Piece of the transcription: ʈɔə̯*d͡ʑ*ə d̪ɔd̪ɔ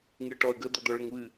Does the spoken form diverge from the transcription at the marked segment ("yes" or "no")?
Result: yes